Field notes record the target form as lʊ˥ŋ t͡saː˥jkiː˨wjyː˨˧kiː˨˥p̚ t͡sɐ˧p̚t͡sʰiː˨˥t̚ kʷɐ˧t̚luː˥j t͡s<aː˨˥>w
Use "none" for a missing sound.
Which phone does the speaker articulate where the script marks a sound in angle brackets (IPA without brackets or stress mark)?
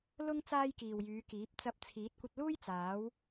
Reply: aː˨˥